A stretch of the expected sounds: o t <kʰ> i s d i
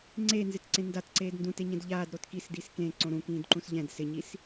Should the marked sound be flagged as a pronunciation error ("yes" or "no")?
yes